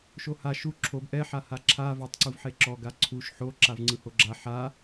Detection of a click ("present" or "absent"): present